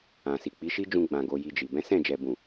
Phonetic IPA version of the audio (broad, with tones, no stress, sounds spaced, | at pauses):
ã˨ s i˨ k͡p i˨˦ ʃ i˦ d͡ʒ ũ˧ ɡ͡b ã˨ ɡ o˨ j i˧ d͡ʒ i˨ b ɛ̃˨˦ s ɛ̃˦˨ d͡ʒ ɛ˨ b ũ˨